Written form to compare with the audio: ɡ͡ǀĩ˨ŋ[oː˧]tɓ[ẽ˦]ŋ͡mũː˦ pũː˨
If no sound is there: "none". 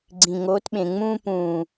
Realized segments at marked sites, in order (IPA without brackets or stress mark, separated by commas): oː˨˦, ẽ˨